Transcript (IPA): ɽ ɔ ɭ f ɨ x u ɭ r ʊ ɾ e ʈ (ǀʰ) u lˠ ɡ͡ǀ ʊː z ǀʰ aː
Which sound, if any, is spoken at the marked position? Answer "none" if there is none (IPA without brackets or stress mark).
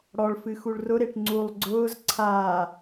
ŋ͡ǀ